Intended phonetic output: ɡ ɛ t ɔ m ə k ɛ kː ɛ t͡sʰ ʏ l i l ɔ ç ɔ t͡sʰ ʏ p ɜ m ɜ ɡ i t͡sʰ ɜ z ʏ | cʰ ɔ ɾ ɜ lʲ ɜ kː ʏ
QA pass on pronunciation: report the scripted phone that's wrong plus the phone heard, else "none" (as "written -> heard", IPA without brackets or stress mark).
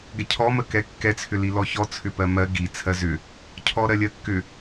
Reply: t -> cʰ